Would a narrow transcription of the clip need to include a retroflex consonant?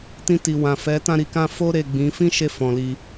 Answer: no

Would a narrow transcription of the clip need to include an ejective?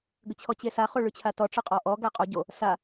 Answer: yes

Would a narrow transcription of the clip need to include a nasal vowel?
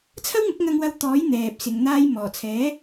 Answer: no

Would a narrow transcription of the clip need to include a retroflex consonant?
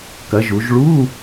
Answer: yes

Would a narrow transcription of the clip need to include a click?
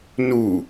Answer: no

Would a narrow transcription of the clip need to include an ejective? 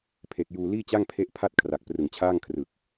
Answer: no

